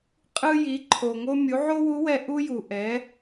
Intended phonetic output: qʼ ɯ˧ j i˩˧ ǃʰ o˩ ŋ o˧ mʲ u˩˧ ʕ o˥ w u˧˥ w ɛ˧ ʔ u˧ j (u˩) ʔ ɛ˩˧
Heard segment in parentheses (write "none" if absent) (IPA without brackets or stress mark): u˩